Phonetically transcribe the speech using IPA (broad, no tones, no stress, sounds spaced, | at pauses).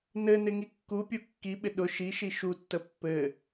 n ɘ n ɪ ŋ i kː u pʲ u kː i ɓ ɪ ɗ ʊ ʃ i ʃ i ʃ u tː ə pː ɘ